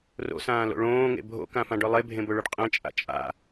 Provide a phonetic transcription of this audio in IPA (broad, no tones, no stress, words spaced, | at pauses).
ro̰sãːlo̰ ɭõːŋḛ bʱo̰kãfãɖɵ lˠebʱẽbɵɭʊɖ qʼẽt͡ʃʼa̰ t͡ʃʼa̰